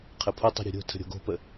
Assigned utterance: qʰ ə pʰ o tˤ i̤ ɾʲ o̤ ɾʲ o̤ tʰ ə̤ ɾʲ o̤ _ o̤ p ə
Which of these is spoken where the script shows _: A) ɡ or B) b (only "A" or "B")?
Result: A